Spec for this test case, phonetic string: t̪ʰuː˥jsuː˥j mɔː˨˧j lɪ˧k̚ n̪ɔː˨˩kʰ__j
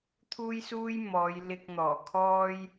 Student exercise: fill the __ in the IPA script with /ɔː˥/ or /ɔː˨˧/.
ɔː˥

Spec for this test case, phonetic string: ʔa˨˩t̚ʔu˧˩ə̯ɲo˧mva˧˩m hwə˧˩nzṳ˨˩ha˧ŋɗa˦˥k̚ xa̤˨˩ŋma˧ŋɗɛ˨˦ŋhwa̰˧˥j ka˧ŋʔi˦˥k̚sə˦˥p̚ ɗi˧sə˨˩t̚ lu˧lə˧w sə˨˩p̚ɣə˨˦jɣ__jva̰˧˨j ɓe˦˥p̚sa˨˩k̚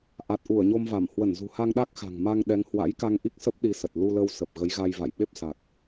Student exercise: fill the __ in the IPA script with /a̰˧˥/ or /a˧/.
a˧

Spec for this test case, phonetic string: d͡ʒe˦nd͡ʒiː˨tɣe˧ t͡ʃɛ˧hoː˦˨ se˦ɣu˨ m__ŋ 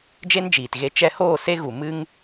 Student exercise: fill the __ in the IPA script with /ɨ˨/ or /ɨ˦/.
ɨ˦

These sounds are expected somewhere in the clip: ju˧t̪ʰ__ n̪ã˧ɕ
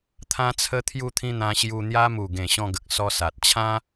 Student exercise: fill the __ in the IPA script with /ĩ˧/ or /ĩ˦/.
ĩ˧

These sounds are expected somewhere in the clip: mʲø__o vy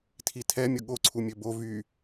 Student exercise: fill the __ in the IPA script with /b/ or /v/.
b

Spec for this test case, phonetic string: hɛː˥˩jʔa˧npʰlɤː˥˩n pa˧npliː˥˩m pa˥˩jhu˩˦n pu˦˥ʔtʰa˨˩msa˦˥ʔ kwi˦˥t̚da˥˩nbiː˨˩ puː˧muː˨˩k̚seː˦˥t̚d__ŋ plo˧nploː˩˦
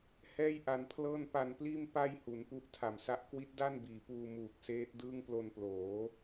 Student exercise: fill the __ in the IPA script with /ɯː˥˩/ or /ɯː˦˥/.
ɯː˥˩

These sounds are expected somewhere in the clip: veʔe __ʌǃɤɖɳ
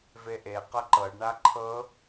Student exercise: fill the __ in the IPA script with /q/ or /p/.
q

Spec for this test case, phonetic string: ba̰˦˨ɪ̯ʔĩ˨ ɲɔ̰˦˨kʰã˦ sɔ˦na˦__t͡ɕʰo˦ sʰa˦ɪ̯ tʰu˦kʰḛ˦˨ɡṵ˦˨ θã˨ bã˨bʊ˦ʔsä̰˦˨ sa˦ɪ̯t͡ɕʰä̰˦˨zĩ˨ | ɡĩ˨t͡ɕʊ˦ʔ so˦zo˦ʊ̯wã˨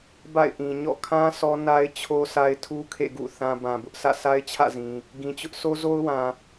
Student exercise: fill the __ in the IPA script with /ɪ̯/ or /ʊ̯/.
ɪ̯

